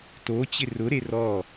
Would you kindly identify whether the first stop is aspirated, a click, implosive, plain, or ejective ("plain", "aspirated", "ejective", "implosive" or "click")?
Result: plain